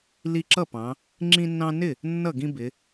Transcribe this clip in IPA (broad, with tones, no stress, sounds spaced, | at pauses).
l i˦ ǁ ʌ˥˨ p ɑ̃˨˦ | ŋ͡ǁ ĩ˦ nː ɑ̃˦ n ɪ˥˨ | nː ʌ˥˨ ɡ ĩ˦ b ɪ˨˦